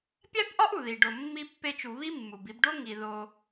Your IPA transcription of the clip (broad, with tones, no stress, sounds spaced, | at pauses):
pʲ æ˥ b ʔ ɒ˥ ʔ u˩ ð i˩ ɖ o˩ mː i˧ pː e˧ t͡ʃ u˩ β i˥ mː u˩ b i˧ b ɖ o˥ ŋ i˩ ð o˩